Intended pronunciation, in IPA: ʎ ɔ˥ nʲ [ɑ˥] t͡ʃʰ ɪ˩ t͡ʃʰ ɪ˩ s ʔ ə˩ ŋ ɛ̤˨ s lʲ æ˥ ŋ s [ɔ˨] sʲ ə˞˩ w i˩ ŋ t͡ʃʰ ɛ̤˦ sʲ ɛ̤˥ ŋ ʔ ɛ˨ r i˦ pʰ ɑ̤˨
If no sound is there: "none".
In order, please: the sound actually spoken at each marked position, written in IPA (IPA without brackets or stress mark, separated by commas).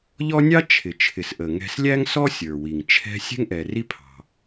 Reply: ɑ˥, ɔ˥